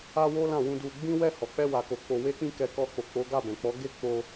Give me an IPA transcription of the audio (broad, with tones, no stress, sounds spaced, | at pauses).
a˦ w o˦ l ã˦˨ w ũ˧ d u˧ ɡ͡b ĩ˦ w ɛ˦˨ h ɔ˨ k͡p ɛ˧ w a˨ k o˨ k͡p o˧ w e˦ k͡p ĩ˦ k ɛ˧ k ɔ˧ k͡p o˨ k͡p o˨˦ ɡ a˦˨ b ɛ̃˨ k͡p ɔ˨˦ ɡ e˦˨ k͡p o˧